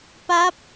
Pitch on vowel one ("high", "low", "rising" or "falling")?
rising